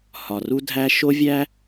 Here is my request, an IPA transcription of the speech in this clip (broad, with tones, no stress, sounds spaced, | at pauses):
h ɒ˨ r u˦ dʱ æ˦ ʃ o˦ vʲ æ˦